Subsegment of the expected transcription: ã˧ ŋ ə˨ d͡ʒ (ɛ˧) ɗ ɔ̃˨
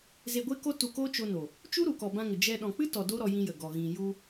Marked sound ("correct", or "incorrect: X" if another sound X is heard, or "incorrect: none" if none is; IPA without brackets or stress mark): correct